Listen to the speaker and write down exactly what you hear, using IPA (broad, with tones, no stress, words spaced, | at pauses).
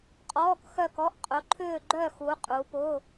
qʼɔː˧˥˧kxœ˥˧kɔ˧˥˧ʔ qʼʊ˨˦ǃʰʏː˥˧ ɡ͡ǃœ˥˧xu˨˦ qʼu˨˦pʊ˧˥˧